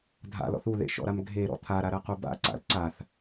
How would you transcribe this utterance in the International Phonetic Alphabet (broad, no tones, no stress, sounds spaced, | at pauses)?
dʱ a̰ l ɔ̰ θ u ð ḛ ʃ ɔ̰ ɾ a m ɡʱ e ɾ ɔ̰ t̪ʰ a ɾ a ɾ ɜ q u b a̰ ǀ a̰ l ǀ a θ